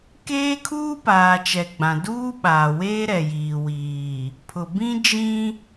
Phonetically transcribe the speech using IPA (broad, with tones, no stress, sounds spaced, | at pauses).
k eː˦ kʰ uː˦ p aː˨ t͡ʃ ɛ˨ ɡ͡b ã˨ d uː˦ ɓ aː˨ w eː˦ ɾ ɛ˨ j iː˨ w iː˨ | pʰ ʊ˨ b ĩ˦ d͡ʒ ĩ˦